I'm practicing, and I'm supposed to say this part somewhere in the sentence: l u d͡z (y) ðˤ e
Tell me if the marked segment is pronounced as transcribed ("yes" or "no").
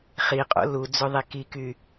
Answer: no